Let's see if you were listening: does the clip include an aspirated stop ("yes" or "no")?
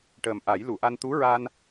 no